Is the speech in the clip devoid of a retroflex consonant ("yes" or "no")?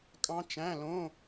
yes